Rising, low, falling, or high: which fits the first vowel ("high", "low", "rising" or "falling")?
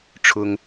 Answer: high